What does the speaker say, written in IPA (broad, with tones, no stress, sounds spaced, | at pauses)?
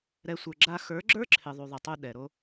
ɾ ɛ˧ sʷ ə˞˨ ɡ͡ǁ a˧ x ə˞˨˦ ɡ͡ǁ ə˞˦ ǁʰ ɪ˨ ðˤ u˨ ðˤ ɪ˨ tˤ u˧ ɗ ɛ˨ ɾ o˦